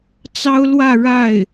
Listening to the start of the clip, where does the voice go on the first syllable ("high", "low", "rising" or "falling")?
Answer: high